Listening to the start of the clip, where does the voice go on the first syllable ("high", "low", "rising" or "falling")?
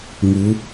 rising